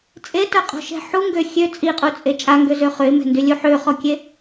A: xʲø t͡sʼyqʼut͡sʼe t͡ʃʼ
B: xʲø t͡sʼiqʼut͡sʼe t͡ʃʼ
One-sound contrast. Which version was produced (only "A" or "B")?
B